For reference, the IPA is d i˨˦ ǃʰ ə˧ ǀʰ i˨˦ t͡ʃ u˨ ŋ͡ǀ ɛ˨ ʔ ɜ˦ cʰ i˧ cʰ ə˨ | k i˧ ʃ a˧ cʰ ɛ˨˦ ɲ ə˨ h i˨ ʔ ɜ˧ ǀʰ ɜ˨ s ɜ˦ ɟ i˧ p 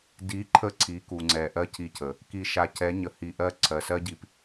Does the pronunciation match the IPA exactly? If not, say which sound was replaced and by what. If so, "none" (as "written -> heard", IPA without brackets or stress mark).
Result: t͡ʃ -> k